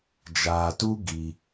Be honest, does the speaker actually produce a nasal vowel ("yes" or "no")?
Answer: no